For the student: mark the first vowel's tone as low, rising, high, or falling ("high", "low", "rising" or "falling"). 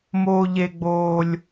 high